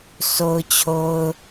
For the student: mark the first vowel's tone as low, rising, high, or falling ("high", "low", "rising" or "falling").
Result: low